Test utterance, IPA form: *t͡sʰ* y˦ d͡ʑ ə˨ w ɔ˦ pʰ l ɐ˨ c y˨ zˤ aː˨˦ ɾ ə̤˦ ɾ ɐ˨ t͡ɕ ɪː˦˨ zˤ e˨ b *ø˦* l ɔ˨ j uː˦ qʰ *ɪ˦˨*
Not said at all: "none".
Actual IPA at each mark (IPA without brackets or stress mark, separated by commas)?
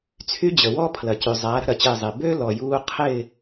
t͡sʰ, ø˦, ɪ˦˨